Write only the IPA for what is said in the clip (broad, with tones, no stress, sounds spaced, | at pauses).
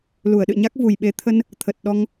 l u˧˩ ə̯ ɗ ɨ̰˧˨ ɲ a˦˥ k̚ v u˨˩ j ɓ e˨˦ t̪ʰ ə˧ n | t̪ʰ ə˨˩ t̚ ɗ ɔ˧ ŋ